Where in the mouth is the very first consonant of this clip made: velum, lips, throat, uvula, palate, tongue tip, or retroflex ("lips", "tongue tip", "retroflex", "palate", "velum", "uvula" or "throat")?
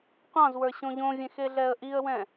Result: uvula